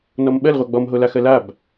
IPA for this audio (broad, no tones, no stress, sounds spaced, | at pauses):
n ɔ m ɓ ɜ l ʁʷ a ɡ͡b ɔ m ɦ o l a x ɜ l a b